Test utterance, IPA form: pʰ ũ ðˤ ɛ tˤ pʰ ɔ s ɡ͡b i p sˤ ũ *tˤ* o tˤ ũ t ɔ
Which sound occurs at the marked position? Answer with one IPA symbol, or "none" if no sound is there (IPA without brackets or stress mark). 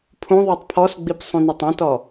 n